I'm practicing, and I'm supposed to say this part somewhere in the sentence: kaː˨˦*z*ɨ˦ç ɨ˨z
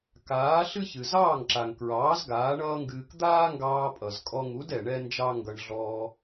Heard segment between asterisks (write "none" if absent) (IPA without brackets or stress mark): ɬ